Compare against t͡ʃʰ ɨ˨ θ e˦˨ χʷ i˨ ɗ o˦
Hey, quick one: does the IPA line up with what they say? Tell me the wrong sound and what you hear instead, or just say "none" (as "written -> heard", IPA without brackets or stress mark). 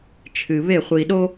θ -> β